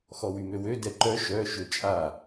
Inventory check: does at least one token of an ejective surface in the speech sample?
yes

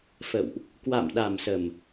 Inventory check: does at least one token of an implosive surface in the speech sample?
yes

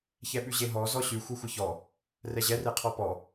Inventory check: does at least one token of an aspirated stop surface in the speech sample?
yes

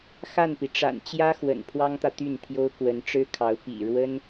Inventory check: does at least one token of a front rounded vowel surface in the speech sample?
yes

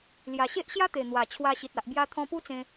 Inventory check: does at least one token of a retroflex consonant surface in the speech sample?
no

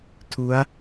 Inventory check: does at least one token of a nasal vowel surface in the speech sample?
no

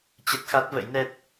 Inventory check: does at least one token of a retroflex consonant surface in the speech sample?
no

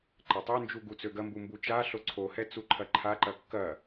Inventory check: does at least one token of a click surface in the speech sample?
yes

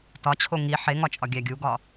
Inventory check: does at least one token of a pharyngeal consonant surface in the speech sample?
yes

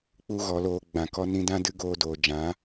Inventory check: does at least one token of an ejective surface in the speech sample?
no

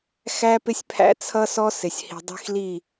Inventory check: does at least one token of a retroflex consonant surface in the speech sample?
no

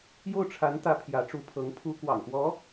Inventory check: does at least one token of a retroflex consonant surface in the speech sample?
yes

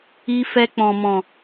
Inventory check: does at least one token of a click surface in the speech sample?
no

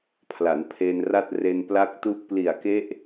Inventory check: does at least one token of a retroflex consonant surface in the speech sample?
no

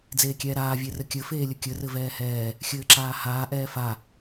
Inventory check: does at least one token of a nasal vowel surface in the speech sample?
no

